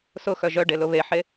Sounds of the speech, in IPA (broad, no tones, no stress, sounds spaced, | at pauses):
s ʊ x œ ʒ œ ɖ e l ʊ β e ħ e